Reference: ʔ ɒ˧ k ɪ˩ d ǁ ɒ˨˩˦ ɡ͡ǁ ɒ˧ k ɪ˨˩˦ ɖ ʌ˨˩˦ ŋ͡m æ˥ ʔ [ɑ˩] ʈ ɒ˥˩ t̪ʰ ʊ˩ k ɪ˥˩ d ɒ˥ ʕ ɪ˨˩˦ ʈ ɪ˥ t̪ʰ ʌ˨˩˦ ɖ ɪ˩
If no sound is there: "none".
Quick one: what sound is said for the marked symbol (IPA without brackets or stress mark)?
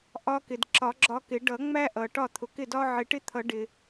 ʌ˩